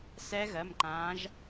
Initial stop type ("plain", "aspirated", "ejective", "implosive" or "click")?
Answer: click